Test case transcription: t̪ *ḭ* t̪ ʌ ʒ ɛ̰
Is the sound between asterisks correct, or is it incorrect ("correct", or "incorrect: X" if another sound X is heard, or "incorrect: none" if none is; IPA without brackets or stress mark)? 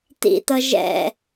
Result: correct